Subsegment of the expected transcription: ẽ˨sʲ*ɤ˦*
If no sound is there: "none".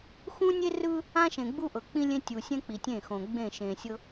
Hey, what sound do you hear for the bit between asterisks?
ɤ˦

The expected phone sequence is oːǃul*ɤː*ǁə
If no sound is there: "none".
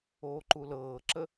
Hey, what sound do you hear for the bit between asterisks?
ɤː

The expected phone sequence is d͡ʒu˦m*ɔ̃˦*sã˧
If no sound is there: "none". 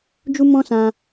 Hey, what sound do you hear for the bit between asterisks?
ɔ̃˦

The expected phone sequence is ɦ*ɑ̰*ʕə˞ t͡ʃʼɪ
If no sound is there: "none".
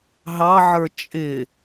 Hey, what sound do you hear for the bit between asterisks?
ɑ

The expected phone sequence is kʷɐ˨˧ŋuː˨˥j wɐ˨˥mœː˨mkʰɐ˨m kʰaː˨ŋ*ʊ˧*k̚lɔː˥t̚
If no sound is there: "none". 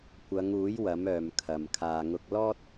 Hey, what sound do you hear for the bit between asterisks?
ʊ˧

